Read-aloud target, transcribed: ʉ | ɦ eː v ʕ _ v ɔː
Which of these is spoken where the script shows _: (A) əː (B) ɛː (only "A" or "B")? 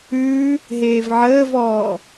A